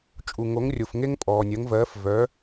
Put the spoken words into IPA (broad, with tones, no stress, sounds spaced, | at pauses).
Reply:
t͡ʃʼ u˩ ŋ o˩˥ ŋ rʲ o˩ f ŋ e˥ ŋ pʼ ɔː˩ nʲ ɜ˩˥ ŋ v ɜː˩˥ f v œ˩˥